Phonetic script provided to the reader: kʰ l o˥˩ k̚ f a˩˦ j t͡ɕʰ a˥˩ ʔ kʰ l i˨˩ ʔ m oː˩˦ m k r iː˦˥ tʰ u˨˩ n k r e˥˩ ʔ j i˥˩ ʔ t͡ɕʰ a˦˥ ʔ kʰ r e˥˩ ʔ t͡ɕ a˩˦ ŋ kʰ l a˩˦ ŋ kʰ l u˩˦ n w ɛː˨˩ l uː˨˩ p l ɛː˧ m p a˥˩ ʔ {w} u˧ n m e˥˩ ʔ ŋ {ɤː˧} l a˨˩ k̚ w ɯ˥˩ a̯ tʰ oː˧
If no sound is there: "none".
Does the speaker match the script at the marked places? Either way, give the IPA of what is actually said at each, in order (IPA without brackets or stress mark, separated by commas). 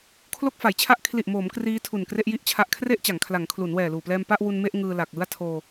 w, ɯː˧